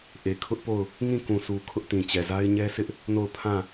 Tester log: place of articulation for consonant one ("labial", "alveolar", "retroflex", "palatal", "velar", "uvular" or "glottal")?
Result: glottal